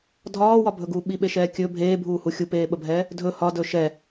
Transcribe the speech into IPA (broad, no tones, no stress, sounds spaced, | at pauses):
dʱ ɒː w ɒ bʱ ɵ ɡ uː ɓ i ɓ e ʃ ɛː kʲ ɵ bʱ eː bʱ uː h u xʲ u p eː ɓ ə bʱ ɛː | dʱ ɵ h ɒ d ɵ ʃ ɛ